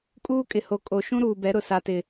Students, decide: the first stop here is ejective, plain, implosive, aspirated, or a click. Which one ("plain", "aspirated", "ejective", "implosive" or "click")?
ejective